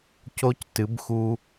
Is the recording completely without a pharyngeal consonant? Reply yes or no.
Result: yes